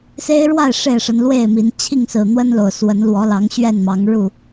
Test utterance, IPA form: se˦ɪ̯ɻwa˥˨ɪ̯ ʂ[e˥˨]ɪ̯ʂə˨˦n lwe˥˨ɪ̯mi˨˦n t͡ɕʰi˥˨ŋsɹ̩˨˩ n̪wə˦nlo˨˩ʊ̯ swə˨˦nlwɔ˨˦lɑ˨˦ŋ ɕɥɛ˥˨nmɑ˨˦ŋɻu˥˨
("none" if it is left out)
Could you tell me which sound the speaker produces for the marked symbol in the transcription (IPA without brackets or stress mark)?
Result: e˥˨